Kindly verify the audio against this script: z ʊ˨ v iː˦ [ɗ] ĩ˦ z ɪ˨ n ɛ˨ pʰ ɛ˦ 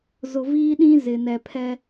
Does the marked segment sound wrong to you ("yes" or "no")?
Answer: no